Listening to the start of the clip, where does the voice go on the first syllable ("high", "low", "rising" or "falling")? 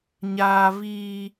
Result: low